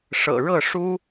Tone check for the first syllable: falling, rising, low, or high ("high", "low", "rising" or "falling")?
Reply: low